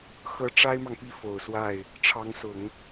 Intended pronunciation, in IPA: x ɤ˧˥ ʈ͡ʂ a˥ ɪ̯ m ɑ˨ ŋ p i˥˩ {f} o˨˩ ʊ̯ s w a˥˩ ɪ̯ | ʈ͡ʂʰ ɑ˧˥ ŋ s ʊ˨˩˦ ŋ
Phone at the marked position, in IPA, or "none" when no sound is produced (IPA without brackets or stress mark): f